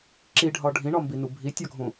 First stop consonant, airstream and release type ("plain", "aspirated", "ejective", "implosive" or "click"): click